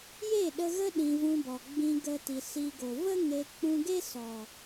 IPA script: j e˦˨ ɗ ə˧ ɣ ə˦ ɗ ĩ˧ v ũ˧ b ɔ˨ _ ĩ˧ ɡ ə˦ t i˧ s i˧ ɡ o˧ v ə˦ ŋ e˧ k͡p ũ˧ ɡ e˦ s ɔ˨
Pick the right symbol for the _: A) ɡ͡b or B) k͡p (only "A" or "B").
A